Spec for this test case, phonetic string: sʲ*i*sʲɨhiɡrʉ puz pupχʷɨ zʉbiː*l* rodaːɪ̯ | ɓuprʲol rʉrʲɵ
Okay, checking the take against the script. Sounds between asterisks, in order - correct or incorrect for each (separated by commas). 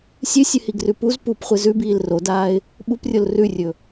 incorrect, correct